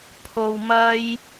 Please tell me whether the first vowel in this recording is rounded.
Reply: yes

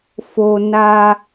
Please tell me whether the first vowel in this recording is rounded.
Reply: yes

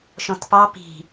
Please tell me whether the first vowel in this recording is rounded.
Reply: yes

